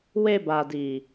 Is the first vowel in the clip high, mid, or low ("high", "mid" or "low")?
mid